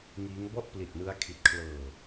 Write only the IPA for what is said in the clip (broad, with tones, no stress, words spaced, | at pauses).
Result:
ŋiː˦˥ŋbɔ˥˩ʔ pli˨˩t̚nɯ˦˥a̯kʰi˨˩t̚ kʰlɤː˨˩